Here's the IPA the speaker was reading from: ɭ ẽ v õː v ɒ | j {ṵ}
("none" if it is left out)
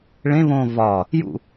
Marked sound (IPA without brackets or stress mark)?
ṵ